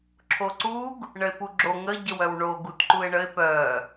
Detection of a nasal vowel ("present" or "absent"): absent